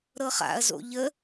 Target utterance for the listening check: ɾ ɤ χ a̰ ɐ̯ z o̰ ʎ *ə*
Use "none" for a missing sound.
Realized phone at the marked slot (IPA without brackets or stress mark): ə